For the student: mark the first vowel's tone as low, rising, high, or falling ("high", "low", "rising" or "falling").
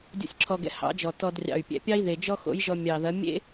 high